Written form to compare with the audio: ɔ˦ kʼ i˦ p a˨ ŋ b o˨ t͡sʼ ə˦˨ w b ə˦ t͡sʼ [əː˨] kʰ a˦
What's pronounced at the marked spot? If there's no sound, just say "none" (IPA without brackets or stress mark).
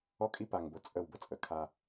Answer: ə˨